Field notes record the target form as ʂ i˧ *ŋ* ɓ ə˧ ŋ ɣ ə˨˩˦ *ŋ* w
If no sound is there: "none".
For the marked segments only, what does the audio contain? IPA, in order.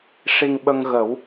ŋ, none

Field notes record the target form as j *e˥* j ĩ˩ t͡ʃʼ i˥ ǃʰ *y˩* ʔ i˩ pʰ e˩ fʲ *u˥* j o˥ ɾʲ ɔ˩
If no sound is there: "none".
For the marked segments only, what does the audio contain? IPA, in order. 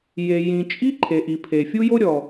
e˩, e˩, u˥

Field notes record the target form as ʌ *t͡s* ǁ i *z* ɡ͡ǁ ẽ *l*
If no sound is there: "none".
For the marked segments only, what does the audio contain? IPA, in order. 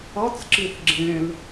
t͡s, θ, l

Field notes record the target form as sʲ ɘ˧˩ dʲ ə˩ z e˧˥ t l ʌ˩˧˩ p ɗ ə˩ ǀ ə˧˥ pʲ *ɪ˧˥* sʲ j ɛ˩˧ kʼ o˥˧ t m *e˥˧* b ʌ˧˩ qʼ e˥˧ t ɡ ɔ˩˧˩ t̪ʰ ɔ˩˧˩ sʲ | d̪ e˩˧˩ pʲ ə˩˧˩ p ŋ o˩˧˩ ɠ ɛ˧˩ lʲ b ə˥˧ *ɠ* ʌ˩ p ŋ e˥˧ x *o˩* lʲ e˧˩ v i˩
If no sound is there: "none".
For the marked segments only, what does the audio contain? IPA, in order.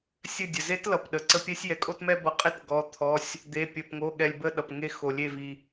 ɛ˧˥, ɛ˥˧, ɗ, o˩

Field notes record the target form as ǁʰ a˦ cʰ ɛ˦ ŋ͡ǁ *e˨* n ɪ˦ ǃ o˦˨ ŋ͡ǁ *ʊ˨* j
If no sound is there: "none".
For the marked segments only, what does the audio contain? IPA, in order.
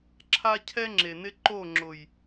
e˨, ʊ˨

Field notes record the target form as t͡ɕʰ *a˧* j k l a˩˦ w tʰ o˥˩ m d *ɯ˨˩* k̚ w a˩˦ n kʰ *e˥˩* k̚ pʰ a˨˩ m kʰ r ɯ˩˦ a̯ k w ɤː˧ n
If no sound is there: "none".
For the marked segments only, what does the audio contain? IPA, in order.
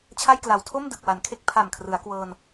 a˥˩, ɯ˨˩, e˥˩

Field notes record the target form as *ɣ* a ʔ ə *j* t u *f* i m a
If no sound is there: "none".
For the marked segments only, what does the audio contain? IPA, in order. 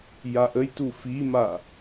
j, j, f

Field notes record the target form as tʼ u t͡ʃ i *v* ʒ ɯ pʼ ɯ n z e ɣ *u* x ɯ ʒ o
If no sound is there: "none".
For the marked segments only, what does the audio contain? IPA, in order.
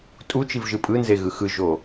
v, ɯ

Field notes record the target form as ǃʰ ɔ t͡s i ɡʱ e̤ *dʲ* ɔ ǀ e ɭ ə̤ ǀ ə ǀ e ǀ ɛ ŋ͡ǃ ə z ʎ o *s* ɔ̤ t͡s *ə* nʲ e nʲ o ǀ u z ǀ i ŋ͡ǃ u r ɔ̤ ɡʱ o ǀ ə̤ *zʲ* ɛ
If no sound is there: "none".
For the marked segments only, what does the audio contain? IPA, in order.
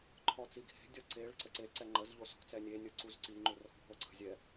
dʲ, s, ɛ, zʲ

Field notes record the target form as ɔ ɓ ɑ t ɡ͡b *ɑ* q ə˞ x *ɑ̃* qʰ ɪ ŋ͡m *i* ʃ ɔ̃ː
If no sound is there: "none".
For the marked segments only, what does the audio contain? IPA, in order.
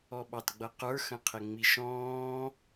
ʌ, ə̃, i

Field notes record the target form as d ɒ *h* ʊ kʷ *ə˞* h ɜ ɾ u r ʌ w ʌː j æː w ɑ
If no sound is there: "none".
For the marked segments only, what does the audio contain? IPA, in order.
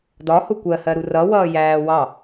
h, ɜ

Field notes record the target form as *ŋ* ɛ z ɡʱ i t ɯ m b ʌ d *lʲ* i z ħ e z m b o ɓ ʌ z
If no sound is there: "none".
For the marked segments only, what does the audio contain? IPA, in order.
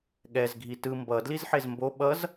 ɠ, l

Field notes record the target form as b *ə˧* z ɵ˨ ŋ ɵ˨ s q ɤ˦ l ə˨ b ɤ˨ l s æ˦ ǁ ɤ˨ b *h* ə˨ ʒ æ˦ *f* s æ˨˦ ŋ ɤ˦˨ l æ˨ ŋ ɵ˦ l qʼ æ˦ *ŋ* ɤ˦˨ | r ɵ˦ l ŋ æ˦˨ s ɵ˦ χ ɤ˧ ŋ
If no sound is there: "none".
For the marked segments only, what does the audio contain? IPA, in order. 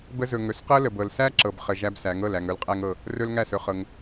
ə˧, χ, b, ŋ

